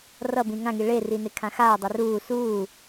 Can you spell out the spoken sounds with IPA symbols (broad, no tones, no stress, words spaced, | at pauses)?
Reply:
rʌbĩ ŋãŋi ɭeri nekʰãxaː dˤɯruː suː